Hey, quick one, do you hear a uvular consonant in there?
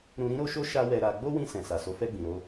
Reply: no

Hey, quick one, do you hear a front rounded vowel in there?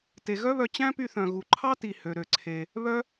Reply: yes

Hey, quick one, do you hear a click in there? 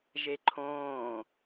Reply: yes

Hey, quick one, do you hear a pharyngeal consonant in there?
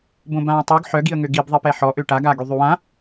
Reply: yes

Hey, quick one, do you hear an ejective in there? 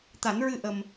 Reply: no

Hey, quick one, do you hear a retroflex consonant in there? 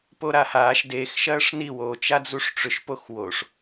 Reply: yes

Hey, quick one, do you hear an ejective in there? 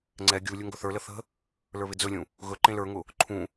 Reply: no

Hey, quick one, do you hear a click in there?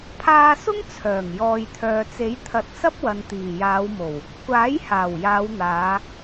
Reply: no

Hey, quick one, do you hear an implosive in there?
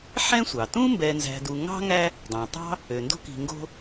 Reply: no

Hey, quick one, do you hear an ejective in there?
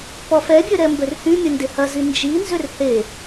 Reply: no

